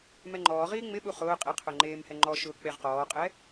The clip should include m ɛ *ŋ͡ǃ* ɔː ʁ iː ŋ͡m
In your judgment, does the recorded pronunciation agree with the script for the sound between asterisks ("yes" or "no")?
yes